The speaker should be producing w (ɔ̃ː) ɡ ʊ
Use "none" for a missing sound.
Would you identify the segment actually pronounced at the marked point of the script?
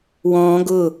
ɔ̃ː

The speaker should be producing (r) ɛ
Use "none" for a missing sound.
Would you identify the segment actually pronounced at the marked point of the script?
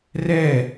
r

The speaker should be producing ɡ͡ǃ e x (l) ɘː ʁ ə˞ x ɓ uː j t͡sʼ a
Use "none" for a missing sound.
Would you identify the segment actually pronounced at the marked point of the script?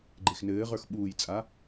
n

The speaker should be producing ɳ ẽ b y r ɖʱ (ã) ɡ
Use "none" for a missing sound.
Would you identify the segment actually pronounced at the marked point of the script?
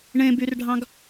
ɑ̃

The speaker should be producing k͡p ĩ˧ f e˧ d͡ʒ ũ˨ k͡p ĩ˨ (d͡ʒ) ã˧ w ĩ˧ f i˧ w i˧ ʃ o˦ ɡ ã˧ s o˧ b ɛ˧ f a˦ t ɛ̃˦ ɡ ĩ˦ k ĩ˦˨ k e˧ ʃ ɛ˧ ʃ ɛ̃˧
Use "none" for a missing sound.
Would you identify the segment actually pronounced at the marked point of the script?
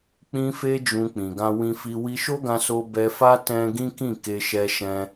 ɡ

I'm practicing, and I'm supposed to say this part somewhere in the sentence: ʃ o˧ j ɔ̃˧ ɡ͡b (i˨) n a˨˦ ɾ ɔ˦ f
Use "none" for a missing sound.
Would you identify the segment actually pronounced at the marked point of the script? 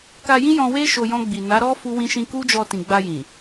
i˨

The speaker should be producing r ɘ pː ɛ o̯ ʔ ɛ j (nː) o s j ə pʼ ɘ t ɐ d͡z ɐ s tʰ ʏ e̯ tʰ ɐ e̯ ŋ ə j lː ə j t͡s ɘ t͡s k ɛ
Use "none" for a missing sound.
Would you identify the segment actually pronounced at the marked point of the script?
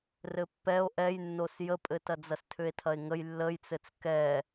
nː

